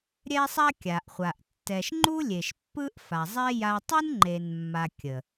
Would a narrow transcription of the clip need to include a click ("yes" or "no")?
yes